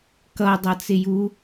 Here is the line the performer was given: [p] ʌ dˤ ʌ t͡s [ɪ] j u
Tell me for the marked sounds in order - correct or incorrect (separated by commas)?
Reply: incorrect, correct